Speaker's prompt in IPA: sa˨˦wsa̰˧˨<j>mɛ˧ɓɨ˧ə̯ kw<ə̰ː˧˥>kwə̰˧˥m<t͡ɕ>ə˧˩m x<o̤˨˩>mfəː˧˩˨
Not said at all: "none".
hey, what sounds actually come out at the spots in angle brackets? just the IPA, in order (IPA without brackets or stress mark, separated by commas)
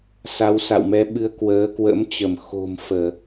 w, əː˨˦, t͡ɕ, o̤˨˩